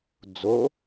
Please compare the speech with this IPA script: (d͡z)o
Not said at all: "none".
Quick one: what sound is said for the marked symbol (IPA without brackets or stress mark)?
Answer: d͡z